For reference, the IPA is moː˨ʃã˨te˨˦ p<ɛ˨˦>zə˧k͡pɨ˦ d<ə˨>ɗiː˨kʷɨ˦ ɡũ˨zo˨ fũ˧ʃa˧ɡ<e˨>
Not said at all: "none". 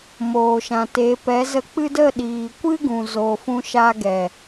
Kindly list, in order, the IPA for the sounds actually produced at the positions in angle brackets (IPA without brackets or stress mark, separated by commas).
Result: ɛ˨˦, ə˦˨, ɛ˨